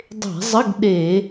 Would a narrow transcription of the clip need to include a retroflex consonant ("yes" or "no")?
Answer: no